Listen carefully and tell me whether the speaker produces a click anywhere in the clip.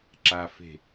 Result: yes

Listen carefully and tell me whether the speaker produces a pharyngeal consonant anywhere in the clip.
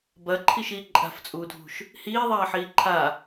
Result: yes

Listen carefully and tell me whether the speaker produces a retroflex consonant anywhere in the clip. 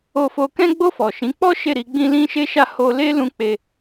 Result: no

